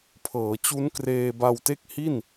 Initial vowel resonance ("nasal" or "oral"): oral